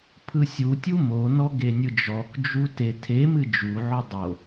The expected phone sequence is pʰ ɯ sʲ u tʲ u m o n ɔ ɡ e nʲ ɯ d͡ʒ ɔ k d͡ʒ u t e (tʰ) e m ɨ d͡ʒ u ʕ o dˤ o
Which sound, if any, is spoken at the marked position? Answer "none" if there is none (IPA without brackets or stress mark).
tʰ